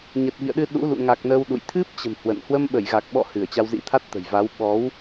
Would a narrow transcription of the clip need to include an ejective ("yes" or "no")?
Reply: no